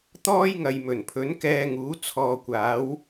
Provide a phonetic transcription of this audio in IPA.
t̪ ɔː˥ j ŋ ɐ˨ j m ɵ˨˩ n pʰ ɵ˨˥ n k ɛː˧ ŋ uː˨˥ t͡sʰ ɔː˨ kʷ aː˨˥ w

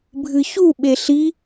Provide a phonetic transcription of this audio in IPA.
bʱ ɨ ç u ɓ e ɬ i

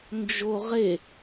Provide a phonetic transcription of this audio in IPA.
n d͡ʒ o ʁ e

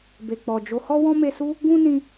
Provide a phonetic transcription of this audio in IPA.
b e˨ k͡p ɔ˨ d͡ʒ o˨˦ h ɔ˦ w ɔ̃˦ m e˧ s u˦ | ɡ ũ˦ n ĩ˧

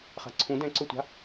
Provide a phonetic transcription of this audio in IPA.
χ a̤ ǀʰ ũ d ɛ̃ ǀ ɵ tʷ a̤

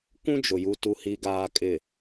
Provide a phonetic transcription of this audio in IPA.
kʷ ũ˦ d͡ʒ ʊ˨ j u˨ t u˨ h i˨ ɡ aː˨ kʼ ɪ˨

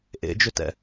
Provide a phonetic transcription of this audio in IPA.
ʔ ḛ d͡ʒ ʏ t ɛ̰

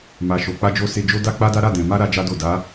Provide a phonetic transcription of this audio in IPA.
m a˨ ʃ o˨ k͡p a˧ d͡ʒ o˧ s e˧ d͡ʒ o˦ d a˦ k͡p a˦ d a˦ ɾ a˦˨ d ɛ̃˨ m a˧ ɾ a˦ d͡ʒ a˦ d o˦˨ d a˨˦

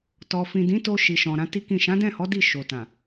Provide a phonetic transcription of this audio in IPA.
t ɔ˨ f ĩ˨ d ĩ˨˦ t o˧ ʃ i˨ ʃ ɔ̃˨ ɾ ã˨˦ t i˦ k ĩ˦˨ ʃ ã˨˦ d ɛ̃˦˨ h ɔ˨˦ d i˦˨ ʃ o˨ t ã˨

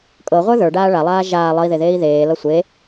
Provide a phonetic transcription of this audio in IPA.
kʼ ɤ ʁʷ ə˞ ð ə˞ ɖ aː ɭ a lˠ aː ʒ aː lˠ ʌ i̯ ð e ð eː i̯ ð eː l ʌ sʷ e

